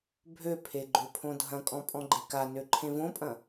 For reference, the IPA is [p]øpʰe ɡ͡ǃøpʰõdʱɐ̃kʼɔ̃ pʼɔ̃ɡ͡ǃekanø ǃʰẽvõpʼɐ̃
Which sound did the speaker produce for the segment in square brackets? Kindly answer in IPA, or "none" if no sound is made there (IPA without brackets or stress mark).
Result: bʱ